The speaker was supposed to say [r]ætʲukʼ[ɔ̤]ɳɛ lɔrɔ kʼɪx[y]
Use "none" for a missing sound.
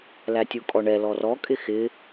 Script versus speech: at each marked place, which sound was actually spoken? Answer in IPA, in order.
l, ɔ, ɪ

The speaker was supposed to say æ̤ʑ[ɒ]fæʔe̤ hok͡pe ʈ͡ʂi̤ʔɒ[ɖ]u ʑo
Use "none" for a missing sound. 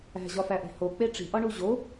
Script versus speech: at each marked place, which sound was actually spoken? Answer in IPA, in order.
ɒ, ɳ

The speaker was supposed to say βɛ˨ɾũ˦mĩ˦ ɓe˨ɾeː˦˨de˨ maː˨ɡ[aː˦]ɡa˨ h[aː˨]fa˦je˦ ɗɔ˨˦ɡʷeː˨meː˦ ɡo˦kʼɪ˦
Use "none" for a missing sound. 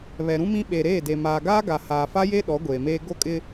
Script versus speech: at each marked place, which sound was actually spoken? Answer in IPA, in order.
aː˦, aː˨

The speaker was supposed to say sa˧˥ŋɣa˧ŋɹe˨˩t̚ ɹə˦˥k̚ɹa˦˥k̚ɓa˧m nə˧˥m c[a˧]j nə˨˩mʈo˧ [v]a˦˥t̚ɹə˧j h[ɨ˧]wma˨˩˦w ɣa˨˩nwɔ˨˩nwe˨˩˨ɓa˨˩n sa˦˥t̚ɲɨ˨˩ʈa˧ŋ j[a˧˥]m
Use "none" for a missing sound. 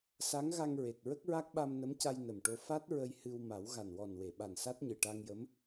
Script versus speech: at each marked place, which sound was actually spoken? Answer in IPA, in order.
a˧, f, ɨ˧, ə˧˥

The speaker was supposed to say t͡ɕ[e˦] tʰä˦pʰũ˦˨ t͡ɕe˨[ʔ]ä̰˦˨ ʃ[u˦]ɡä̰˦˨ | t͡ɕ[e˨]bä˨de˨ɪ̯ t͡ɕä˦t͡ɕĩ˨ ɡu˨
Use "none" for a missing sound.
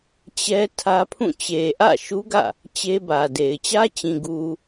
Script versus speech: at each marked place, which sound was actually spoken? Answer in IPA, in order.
ɛ˦, ʔ, u˦, e˦

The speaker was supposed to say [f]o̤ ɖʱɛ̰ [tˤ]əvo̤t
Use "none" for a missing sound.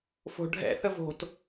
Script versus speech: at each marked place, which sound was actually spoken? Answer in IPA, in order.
f, θ

